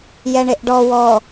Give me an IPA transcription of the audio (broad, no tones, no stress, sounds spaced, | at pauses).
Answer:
j ɛ ɳ e ʔ ɖ ɔ w ɔ